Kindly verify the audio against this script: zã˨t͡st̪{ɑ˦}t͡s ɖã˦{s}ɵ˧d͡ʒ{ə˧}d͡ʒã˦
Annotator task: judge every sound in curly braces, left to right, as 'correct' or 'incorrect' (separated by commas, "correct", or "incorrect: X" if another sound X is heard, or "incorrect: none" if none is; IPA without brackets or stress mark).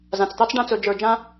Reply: correct, incorrect: t͡s, incorrect: ə˞˧